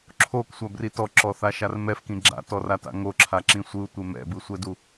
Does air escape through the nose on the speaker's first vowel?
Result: no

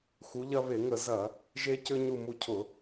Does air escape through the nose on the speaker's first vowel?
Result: no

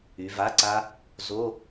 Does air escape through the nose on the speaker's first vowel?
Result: no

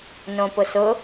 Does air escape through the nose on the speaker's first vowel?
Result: yes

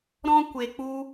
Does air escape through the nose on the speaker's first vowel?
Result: yes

